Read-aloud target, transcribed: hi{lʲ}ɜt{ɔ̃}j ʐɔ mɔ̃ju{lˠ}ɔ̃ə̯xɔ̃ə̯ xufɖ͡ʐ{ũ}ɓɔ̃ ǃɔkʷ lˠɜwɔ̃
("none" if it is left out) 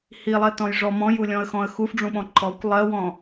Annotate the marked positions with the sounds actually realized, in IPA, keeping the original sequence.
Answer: lˠ, ɔ̃, lʲ, ũ

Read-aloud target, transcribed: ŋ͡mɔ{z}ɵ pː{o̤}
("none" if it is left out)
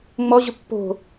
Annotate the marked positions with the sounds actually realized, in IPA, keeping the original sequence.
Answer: ʑ, o̤

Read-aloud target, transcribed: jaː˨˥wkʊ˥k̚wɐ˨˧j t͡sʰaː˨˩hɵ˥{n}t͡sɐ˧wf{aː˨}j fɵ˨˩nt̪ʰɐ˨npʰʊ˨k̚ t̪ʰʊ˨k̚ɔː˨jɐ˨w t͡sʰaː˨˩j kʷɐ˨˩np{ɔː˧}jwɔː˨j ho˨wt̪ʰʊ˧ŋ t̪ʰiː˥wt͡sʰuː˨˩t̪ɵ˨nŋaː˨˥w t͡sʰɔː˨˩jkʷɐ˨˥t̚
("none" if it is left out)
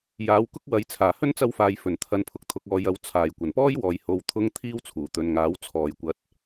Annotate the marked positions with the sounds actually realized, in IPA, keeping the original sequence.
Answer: n, aː˨, ɔː˥

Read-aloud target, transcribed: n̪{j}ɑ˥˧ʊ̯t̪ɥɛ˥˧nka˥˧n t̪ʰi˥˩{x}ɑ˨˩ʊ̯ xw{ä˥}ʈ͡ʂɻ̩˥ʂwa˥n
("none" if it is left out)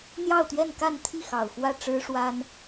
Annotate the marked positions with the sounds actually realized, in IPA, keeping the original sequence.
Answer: j, x, ä˥˩

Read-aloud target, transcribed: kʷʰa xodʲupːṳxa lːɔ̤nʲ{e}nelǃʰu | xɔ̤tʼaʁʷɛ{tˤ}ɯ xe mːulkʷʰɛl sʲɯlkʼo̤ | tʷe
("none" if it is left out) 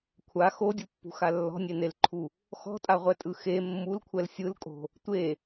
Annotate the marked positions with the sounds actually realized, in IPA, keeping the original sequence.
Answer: e, tʼ

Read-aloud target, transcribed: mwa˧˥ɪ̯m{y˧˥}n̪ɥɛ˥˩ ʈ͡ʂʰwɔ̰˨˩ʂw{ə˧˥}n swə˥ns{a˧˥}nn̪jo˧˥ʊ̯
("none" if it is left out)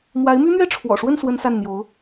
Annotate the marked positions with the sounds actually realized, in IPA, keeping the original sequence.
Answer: y˥, ə˥˩, a˥˩

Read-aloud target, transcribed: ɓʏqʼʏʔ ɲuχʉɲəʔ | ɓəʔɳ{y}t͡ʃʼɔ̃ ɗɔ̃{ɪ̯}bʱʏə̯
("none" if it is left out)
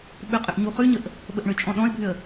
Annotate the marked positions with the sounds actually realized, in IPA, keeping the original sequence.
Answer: ʏ, ɪ̯

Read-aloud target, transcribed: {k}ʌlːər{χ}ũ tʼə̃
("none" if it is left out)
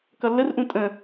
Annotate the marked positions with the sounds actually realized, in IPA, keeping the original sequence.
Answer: k, ʔ

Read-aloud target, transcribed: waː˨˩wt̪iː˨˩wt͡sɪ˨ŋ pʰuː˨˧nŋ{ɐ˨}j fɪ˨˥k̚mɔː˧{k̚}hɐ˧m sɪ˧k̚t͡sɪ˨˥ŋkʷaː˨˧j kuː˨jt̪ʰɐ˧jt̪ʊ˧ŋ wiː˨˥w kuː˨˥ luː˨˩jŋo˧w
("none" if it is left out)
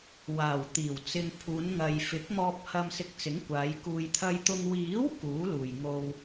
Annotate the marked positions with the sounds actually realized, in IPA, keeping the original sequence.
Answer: ɐ˨, p̚

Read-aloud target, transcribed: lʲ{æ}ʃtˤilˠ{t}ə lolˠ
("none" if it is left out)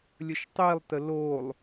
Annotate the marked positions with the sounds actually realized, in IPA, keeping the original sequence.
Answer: ə, t

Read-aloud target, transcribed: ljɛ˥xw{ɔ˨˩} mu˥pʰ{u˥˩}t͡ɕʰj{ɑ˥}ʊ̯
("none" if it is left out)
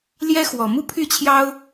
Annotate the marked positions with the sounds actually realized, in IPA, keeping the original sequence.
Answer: ɔ˨˩, y˥˩, ɑ˥

